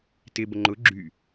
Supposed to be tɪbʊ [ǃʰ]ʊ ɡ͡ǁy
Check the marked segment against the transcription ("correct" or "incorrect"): incorrect